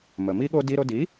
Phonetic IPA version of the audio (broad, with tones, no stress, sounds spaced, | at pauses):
m ə˩ m i˥ ɠ o˥ d i˧ ɾ o˧ d i˩˥